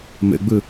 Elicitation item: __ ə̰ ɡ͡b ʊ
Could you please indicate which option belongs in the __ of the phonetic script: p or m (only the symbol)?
m